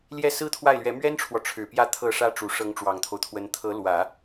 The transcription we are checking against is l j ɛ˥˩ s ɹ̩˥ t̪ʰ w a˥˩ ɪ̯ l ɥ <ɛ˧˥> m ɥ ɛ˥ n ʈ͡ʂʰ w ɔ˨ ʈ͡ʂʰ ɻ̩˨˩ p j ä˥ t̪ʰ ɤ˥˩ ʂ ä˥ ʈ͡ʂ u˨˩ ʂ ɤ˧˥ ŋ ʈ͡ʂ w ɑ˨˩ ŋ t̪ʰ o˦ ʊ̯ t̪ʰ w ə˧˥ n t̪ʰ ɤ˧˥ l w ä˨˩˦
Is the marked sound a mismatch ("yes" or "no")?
no